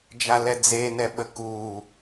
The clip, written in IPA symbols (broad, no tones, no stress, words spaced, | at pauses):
d͡ʒalɛd͡zenɛ ɓəku